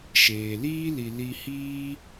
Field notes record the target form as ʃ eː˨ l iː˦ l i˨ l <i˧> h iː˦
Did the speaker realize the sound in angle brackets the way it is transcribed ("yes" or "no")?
yes